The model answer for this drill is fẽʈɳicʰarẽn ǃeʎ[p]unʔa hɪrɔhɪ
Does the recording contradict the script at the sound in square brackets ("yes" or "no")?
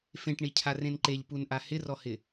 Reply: no